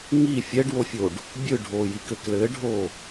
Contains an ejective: no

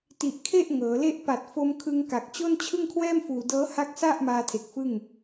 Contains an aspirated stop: yes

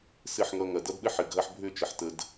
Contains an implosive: yes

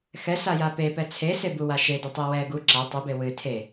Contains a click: yes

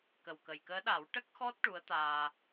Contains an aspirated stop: no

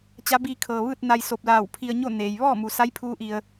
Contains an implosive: no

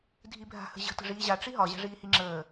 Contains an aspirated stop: no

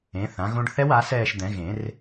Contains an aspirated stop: no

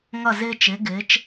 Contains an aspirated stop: no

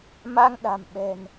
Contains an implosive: yes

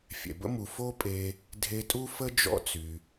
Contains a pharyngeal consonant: no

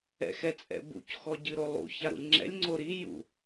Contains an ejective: yes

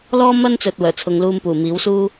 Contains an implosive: no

